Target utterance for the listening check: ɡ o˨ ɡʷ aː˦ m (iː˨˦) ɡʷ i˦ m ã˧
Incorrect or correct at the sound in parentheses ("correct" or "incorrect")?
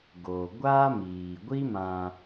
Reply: incorrect